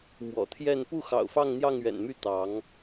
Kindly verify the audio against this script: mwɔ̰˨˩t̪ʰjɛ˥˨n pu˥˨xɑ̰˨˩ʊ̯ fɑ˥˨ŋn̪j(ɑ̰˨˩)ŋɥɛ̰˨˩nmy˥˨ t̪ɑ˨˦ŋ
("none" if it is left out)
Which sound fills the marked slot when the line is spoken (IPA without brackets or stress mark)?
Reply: ɑ˥˨